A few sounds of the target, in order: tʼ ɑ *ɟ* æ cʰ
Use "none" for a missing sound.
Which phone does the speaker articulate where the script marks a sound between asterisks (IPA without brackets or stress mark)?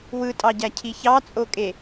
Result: ɟ